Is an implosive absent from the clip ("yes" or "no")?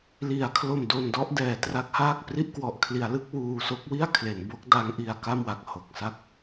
yes